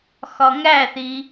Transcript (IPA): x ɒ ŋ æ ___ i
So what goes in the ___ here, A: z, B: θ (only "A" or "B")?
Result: B